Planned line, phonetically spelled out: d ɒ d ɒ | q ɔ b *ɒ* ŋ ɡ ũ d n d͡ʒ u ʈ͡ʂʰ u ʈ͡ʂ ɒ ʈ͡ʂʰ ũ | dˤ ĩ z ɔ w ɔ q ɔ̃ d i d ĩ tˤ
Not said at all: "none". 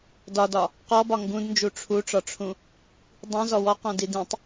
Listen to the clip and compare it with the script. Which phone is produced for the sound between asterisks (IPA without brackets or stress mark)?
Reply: ɒ